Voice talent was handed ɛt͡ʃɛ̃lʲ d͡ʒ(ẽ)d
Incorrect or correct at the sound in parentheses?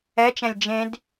correct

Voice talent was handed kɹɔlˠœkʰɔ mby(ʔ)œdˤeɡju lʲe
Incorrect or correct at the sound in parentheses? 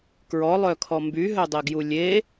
incorrect: ɦ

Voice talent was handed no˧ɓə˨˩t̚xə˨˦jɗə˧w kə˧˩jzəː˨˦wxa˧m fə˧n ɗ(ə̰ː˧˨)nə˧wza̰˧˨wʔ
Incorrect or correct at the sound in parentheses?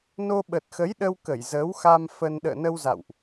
correct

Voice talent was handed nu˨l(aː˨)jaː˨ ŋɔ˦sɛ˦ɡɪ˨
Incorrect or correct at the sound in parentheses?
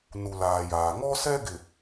correct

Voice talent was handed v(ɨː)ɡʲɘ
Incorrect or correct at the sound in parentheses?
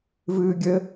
correct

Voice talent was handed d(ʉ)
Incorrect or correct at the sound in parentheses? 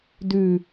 correct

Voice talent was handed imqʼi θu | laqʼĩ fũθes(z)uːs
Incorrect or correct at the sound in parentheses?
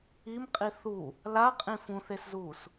correct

